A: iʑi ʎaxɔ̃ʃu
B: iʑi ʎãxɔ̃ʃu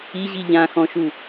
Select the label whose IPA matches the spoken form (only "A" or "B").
B